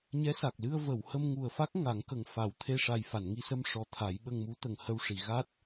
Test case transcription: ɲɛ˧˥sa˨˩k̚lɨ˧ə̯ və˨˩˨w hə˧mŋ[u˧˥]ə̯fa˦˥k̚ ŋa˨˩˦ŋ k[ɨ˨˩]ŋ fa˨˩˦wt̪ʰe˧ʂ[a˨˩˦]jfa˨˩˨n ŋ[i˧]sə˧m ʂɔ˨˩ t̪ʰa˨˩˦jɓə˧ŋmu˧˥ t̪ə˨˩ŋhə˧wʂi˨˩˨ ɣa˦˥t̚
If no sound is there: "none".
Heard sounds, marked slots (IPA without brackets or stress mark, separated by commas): u˨˩, ə˨˩, a˨˩, i˧